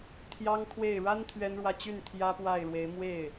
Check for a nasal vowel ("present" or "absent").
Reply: absent